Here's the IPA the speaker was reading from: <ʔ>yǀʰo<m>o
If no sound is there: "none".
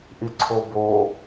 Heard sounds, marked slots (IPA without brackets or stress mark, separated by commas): ʔ, b